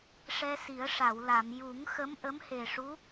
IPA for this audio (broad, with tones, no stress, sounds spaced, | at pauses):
ʂ ɛ˧ s i˨˩˦ ə̯ ʂ a˨˩˨ w l a˨˩˨ m j u˨˩˦ ŋ x ə˧˥ m ʔ ə˧˥ m h e˨˩ ʂ u˧˥